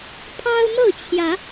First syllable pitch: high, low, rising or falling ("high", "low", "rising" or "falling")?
high